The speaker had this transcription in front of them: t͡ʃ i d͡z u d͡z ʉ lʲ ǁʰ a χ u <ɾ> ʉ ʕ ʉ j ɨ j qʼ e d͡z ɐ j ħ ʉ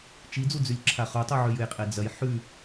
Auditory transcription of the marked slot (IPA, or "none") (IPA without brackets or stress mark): tˤ